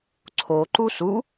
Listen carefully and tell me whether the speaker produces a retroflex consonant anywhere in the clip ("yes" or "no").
no